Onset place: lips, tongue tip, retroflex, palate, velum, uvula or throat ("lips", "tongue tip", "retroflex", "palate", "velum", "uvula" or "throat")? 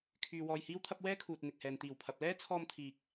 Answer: velum